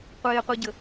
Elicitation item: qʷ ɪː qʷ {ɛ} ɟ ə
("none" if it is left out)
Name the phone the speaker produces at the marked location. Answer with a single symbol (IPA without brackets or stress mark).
ɛ